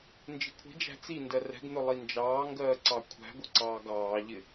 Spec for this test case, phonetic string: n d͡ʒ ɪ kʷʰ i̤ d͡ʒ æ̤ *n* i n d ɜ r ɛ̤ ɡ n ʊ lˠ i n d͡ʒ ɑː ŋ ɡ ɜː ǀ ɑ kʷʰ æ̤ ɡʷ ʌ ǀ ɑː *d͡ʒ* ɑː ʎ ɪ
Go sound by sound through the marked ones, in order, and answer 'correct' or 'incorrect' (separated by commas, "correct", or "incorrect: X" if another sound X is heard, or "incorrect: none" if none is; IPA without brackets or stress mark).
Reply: incorrect: t͡s, incorrect: ɡ